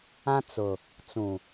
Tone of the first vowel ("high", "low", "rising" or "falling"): high